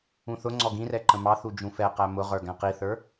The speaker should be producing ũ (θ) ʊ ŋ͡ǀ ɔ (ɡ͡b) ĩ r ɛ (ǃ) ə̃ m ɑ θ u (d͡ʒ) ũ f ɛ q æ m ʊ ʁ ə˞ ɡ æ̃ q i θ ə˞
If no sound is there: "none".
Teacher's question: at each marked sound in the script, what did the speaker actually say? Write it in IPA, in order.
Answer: θ, ɡ, ǃ, d͡ʒ

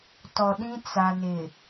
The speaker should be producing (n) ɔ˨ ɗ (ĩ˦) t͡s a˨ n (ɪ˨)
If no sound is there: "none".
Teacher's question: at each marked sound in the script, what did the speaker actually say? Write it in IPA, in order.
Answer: t, ĩ˦, ɪ˨

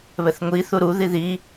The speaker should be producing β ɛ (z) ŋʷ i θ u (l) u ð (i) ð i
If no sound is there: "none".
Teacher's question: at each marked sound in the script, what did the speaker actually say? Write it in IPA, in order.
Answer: θ, ɾ, i

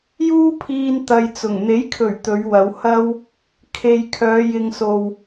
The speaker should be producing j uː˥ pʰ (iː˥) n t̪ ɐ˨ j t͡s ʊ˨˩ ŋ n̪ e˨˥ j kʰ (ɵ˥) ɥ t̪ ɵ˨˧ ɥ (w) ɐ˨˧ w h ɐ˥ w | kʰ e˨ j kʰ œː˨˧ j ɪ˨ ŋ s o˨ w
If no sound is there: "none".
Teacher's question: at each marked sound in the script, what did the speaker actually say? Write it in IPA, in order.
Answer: iː˧, ɵ˨˩, w

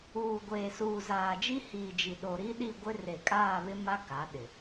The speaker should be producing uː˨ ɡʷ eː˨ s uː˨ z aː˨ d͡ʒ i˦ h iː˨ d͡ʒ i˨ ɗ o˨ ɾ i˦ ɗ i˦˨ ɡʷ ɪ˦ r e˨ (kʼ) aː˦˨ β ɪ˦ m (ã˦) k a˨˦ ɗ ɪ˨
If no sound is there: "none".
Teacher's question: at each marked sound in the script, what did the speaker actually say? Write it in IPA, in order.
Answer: kʼ, a˦

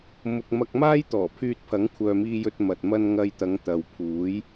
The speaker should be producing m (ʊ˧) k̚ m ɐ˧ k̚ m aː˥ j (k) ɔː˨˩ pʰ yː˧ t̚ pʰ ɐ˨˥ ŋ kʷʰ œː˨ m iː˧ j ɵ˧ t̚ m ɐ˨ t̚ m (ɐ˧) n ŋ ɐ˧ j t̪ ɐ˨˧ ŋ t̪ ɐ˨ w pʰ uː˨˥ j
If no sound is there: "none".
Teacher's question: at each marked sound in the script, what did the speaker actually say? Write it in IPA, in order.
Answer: ʊ˨, t̪, ɐ˥

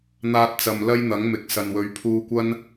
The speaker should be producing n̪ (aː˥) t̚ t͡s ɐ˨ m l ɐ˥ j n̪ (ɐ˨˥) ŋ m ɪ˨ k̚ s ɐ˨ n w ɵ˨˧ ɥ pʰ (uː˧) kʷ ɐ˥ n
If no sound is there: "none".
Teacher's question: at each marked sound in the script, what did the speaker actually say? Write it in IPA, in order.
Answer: aː˧, ɐ˨˥, uː˧

